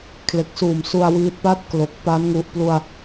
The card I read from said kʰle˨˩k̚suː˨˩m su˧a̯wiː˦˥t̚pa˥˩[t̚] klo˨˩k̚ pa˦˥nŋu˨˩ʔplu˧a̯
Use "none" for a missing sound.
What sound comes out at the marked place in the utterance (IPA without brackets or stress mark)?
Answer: t̚